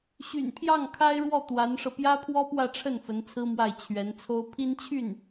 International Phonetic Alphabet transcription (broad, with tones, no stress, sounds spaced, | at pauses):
ɕ y̰˨˩ n pʰ j ɑ˥˩ ŋ kʰ a˥ ɪ̯ ɻ w ɔ˥˩ t̪ w a˧˥ n ʂ ɤ˧ p j ä˥ pʰ w ɔ˥ p w ä˥˧ ʈ͡ʂʰ ə˥˩ n f ə˧˥ n t͡sʰ ɹ̩˥ m w a˥˩ ɪ̯ t͡ɕʰ ɥ ɛ˧˥ n t͡sʰ o˥ ʊ̯ pʰ i˥ n t͡ɕʰ y˥˩ n